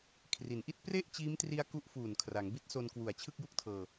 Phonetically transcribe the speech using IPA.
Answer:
kʰri˩˦nʔi˥˩t̚ pre˥˩ʔt͡ɕiː˦˥mtri˦˥a̯ ku˦˥ʔfuː˨˩nkʰra˩˦ŋ bi˦˥t̚so˧nkwu˨˩a̯ t͡ɕʰɯ˥˩k̚ju˥˩k̚tʰɤː˧

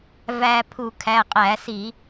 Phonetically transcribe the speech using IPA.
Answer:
væ˧ pʰu˧˩˧kʰæ˩˧˩qʼæ˧˩˧si˧˩˧

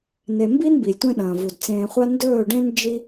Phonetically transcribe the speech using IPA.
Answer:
ne˨mbi˦n bi˨lʲtʷẽ˦ɗɐ̃ː˨vu˨d t͡sẽː˨χʷa˧ ndɵː˦˨ɖẽ˦n d͡ʒi˦

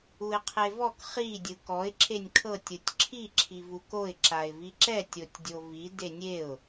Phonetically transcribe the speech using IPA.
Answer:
uɪ̯qʰevɔk χi dʲɯkɔɪ̯ ǁʰenʲkʰɤtʲ ɯtʲǁʰi ǁʰivukoɪ̯ ǁaɪ̯viǁɛtʲ otʲdʲovi denʲeʊ̯

